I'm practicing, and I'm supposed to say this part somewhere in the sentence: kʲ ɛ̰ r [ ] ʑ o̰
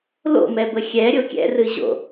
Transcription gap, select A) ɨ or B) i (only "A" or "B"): A